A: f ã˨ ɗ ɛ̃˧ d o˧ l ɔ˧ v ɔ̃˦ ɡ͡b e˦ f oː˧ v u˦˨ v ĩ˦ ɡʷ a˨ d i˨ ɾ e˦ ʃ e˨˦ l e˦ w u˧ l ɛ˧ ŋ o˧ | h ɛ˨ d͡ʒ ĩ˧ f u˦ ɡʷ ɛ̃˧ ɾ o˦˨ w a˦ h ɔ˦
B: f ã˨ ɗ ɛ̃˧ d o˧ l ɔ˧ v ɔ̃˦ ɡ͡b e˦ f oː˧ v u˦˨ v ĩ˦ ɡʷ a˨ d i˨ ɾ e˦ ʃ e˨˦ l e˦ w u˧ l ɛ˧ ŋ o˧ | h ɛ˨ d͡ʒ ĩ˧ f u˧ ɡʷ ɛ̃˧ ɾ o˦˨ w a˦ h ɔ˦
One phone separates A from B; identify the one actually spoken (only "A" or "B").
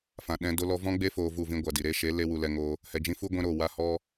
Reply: A